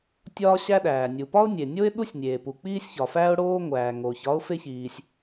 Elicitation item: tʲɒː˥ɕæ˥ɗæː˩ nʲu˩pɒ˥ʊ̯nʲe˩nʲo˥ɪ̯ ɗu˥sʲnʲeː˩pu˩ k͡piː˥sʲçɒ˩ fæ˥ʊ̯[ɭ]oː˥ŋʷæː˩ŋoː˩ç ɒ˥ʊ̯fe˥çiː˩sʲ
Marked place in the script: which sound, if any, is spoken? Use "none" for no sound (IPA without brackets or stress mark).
ɽ